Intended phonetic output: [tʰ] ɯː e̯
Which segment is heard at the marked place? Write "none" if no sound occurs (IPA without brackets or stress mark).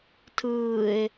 tʰ